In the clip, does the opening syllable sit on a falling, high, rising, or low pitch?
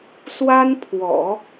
high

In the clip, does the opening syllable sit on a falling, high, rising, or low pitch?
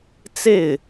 falling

